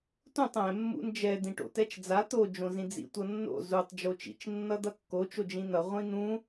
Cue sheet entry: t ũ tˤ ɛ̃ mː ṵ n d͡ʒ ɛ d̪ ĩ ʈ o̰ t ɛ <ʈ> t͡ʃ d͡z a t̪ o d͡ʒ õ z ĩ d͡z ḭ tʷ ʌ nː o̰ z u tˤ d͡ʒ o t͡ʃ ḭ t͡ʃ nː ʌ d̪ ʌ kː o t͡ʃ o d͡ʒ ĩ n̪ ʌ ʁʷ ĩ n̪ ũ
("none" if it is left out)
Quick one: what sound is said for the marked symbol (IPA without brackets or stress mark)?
none